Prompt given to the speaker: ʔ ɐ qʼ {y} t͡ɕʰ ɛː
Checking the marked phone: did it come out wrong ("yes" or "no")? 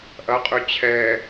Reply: no